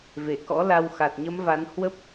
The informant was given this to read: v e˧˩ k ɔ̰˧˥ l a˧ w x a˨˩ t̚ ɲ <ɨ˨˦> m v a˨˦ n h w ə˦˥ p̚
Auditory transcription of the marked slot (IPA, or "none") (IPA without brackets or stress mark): ə˨˦